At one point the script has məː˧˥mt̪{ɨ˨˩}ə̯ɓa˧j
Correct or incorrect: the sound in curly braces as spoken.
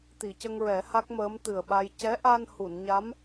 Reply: correct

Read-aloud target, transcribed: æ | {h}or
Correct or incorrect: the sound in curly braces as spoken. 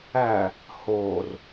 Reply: correct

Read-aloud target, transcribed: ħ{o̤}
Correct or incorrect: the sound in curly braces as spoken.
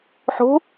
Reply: correct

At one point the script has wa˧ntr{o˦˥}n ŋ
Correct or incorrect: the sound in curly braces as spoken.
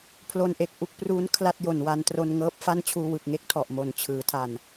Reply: incorrect: o˧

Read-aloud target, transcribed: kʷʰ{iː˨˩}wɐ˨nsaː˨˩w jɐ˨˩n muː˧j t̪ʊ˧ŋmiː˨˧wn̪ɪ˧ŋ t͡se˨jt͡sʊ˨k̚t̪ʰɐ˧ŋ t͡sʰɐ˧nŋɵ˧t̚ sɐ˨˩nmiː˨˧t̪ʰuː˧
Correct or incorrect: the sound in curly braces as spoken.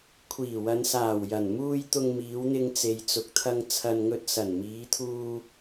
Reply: correct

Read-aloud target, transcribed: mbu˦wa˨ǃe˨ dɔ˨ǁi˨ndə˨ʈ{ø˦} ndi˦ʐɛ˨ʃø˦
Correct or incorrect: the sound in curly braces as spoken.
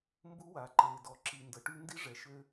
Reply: incorrect: y˦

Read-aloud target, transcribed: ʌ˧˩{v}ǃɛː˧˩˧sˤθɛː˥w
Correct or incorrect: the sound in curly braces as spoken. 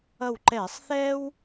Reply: incorrect: w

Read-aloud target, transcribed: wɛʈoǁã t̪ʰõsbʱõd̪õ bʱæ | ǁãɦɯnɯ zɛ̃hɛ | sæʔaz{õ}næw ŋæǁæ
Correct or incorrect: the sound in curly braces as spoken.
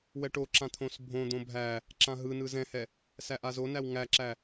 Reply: incorrect: o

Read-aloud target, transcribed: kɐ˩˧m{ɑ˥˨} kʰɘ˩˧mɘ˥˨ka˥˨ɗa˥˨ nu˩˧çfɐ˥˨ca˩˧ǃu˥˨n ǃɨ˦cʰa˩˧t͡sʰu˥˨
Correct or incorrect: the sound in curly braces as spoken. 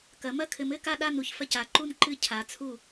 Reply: incorrect: ɐ˥˨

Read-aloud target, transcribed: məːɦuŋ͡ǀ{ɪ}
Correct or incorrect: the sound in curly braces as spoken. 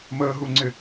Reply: correct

